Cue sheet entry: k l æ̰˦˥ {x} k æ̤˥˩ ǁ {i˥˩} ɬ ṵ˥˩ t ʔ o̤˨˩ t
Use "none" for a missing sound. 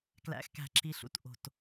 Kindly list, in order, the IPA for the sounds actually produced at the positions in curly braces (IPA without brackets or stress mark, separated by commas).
x, i˦˥